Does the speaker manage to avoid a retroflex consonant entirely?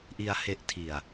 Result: yes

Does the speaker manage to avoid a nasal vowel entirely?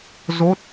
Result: yes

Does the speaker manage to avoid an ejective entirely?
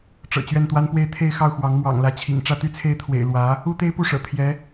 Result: yes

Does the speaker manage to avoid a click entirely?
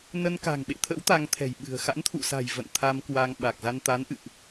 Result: yes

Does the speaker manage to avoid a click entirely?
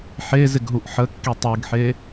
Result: yes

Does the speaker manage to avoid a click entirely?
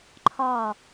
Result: no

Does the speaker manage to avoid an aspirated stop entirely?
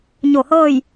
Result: yes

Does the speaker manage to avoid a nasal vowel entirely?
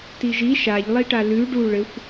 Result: yes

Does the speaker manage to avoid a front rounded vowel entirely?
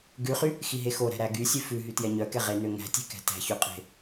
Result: no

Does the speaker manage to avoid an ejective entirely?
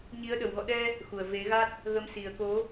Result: yes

